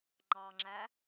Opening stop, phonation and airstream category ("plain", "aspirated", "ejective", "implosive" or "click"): click